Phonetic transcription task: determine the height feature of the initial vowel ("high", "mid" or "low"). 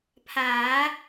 low